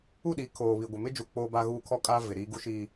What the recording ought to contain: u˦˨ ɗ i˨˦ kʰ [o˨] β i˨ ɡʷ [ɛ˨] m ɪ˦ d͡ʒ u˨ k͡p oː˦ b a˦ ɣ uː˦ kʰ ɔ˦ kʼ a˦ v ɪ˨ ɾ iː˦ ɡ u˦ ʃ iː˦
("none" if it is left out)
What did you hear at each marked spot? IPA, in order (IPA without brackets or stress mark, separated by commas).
oː˨, ɪ˨